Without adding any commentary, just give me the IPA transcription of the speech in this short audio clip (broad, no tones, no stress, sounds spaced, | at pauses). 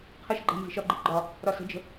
qʰ ə ʃ ɡ͡ǃ æ̤ n z i̤ ʃ ɒ ɡ͡ǃ i ɡ͡ǃ ɒ | ɾ ɒ s ə̤ d͡ʒ ə̤